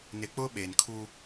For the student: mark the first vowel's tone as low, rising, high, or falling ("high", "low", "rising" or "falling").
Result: low